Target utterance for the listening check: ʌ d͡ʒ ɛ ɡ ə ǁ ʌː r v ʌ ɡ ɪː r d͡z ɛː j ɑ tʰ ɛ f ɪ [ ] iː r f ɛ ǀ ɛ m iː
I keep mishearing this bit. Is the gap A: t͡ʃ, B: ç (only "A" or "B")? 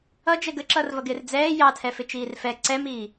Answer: A